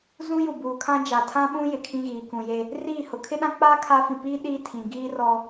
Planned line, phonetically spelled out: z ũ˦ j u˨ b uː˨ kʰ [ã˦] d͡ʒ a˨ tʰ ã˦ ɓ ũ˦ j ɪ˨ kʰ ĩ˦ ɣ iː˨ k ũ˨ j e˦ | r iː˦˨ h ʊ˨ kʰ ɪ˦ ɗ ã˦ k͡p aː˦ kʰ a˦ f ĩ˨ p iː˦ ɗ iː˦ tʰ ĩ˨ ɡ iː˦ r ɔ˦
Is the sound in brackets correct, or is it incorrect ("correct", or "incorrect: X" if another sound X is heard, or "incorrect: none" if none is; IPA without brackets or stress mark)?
correct